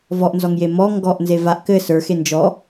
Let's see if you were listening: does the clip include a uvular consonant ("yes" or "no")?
no